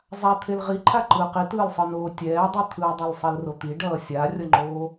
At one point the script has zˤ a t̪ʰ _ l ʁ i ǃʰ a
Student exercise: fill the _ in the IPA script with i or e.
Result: e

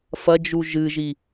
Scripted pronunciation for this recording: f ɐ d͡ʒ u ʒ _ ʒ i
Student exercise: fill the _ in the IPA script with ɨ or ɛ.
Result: ɨ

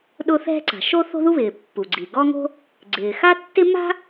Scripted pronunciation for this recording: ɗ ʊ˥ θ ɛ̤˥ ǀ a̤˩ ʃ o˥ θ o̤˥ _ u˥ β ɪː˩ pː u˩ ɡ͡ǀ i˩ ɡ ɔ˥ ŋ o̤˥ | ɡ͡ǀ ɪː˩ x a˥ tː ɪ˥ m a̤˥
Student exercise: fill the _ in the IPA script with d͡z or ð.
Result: ð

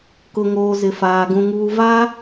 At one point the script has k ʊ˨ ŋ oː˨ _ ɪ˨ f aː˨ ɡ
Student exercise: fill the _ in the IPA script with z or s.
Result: z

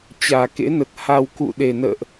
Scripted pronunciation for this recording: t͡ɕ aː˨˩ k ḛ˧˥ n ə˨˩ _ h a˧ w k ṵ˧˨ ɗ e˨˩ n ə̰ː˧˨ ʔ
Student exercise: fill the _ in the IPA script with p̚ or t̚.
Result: t̚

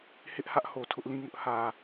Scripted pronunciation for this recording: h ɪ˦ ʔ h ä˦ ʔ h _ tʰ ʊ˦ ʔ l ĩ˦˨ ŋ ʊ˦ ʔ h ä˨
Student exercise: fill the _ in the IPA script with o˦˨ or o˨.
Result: o˨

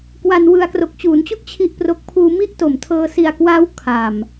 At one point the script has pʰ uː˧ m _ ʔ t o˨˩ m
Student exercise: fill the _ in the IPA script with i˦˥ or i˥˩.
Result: i˦˥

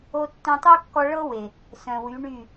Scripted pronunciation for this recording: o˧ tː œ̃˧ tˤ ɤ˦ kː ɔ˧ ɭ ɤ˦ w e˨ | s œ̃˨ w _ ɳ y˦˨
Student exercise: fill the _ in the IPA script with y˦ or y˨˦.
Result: y˨˦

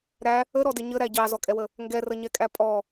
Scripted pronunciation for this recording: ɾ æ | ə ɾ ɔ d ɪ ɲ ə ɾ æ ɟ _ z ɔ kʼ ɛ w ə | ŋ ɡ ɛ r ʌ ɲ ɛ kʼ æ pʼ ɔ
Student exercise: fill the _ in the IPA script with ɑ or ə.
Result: ɑ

